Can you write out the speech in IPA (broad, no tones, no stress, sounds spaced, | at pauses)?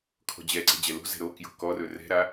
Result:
kʰ ɔ̤ d͡ʑ ɛ ǀ ɛ̤ d͡ʑ ɛ l o̤ z ɛ̤ ɾ o k j o̤ k ɔ r ɵ r ɛ̤ ɾ a